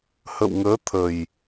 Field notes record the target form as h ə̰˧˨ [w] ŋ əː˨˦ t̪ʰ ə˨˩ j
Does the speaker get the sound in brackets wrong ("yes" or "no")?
no